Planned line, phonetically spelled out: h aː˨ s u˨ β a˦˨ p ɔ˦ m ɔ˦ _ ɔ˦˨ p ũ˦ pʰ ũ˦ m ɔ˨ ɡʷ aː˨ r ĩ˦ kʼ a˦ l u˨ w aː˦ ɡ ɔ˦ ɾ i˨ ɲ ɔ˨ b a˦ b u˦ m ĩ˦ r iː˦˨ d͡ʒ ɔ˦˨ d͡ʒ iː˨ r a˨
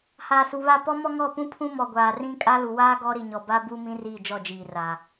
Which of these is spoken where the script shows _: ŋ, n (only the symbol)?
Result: ŋ